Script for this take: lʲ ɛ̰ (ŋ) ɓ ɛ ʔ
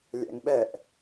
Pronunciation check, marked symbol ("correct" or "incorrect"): correct